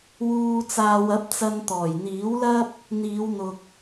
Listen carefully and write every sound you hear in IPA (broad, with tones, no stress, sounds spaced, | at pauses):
w uː˨ t͡s aː˨ w ɐ˨˥ p̚ t͡s ɐ˧ n t̪ ɔː˨˩ j n̪ iː˨˥ w l ɐ˥ p̚ | n̪ iː˨˧ w n̪ ʊ˨ k̚